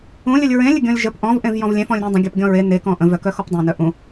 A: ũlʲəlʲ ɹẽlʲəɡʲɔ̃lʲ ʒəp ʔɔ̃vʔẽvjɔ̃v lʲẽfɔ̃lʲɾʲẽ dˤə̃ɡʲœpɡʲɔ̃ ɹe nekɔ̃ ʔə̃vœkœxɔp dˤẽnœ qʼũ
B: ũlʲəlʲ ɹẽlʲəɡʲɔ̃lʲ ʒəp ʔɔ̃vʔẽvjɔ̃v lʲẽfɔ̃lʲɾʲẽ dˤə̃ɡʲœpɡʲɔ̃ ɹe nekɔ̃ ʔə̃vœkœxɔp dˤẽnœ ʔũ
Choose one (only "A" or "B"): B